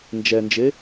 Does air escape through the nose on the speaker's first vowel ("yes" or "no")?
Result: no